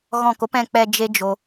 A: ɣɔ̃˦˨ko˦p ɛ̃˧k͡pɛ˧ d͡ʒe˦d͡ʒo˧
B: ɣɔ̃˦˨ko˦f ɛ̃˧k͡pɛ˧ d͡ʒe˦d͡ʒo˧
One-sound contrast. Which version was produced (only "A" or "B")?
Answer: A